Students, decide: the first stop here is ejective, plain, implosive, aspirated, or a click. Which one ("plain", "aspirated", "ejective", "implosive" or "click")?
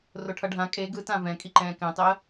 aspirated